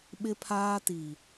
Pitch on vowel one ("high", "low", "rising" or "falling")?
high